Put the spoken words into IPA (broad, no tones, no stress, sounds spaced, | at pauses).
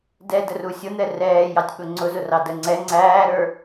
d ɛ d ə r u sʲ ʊ n̪ ɛ r ɛː j ɑ tʲ ɓ ʊ ŋ͡ǀ ʊ z ʊ r ɑ d ə ŋ͡ǀ ɛ ŋ͡ǀ æː ɾ ə˞